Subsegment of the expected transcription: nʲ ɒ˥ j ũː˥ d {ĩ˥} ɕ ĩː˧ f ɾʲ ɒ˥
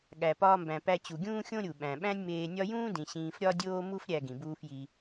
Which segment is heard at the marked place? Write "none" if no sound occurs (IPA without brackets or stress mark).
ĩ˩